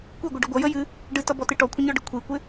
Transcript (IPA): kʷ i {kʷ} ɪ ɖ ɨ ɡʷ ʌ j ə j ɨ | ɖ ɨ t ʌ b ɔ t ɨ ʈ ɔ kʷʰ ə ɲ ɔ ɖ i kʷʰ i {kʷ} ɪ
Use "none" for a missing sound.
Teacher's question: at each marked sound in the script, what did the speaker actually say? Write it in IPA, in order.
ɡʷ, kʷ

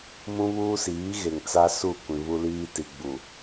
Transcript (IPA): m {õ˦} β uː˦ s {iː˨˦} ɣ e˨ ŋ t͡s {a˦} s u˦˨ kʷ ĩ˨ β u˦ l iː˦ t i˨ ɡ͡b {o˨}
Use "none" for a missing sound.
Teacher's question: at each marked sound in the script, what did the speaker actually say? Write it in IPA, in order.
ũ˦, iː˨˦, a˦, u˨

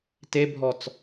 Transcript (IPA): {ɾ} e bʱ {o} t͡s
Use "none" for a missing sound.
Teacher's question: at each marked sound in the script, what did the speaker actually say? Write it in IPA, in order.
t, ɔ

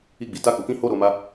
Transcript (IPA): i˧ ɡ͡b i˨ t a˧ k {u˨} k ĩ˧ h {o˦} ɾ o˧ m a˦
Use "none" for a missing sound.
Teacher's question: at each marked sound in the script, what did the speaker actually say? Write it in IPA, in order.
u˨, o˦

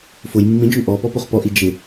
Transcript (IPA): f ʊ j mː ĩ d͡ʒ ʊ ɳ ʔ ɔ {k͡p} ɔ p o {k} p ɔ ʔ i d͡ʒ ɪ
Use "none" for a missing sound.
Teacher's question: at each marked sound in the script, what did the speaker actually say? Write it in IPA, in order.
p, χ

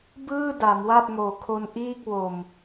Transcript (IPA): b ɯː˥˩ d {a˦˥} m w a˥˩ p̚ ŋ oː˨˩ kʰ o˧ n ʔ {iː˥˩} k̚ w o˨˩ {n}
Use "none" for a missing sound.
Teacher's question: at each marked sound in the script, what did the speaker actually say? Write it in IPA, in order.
a˩˦, iː˥˩, m

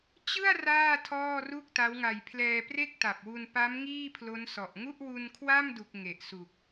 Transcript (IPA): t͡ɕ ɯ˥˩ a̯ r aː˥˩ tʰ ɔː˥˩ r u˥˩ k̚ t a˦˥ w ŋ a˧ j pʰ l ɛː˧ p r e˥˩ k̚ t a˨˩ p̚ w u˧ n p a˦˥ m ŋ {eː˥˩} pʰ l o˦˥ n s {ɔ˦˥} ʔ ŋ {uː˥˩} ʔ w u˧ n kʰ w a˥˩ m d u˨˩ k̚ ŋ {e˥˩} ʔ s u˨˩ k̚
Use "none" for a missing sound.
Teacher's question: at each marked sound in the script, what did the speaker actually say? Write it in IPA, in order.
iː˥˩, ɔ˨˩, u˥˩, e˨˩

